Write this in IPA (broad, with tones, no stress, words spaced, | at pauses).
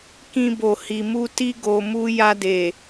kĩ˧bo˨ hi˨mu˧ti˦ ɡo˧mu˦ ja˧de˨